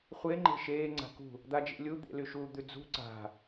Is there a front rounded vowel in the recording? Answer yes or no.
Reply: yes